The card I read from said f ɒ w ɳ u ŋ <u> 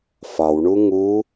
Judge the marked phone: correct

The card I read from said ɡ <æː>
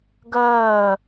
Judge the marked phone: incorrect: ɜː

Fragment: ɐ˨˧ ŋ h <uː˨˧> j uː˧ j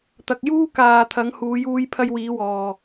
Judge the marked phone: correct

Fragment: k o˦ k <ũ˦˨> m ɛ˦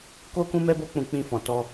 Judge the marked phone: incorrect: ũ˦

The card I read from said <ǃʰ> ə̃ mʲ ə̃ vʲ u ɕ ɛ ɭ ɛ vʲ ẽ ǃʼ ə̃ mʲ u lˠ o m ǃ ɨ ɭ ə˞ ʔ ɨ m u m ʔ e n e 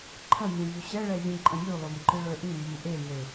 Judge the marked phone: correct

